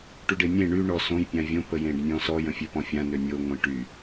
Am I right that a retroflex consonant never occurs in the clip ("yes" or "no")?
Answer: no